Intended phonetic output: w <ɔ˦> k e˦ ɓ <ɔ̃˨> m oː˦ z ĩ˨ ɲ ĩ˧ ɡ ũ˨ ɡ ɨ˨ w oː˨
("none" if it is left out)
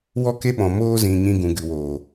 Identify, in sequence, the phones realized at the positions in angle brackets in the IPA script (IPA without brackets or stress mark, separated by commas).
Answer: ɔ˦, ɔ̃˨